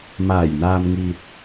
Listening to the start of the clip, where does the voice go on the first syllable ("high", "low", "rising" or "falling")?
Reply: low